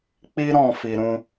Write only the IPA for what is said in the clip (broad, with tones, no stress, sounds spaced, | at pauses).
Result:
k͡p i˦ ɾ ɔ̃˦˨ f i˨ ɾ ũ˧